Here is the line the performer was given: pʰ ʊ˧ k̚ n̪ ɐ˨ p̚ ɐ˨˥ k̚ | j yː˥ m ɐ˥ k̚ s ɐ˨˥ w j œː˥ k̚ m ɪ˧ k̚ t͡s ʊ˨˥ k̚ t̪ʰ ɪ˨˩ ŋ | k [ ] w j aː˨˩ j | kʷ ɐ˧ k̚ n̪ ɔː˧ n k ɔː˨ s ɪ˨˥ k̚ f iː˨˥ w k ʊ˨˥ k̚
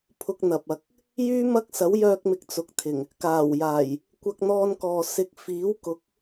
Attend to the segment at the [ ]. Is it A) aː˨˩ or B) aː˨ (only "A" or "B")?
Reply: A